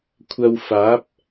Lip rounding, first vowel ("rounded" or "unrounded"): unrounded